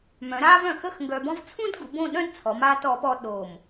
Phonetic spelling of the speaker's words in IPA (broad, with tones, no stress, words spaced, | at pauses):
mœ̃˩˧ɾaː˥v œ̃˧˩xəː˥˧x ŋɡœ˧bɔ̃˥v t͡sʰũ˥dɡu˩˧ bõ˥˧ɗœ̃˥dt͡sʰɔ˩˧m aː˧tɔ˩˧pɔ˧ ɗo˧˩m